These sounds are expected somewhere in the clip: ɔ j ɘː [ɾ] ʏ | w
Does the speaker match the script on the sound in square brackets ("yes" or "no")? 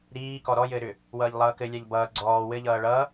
yes